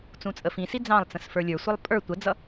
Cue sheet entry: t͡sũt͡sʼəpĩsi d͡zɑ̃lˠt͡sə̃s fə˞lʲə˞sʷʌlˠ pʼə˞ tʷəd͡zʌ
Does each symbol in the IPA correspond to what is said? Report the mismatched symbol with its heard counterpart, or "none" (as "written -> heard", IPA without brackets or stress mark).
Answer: p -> f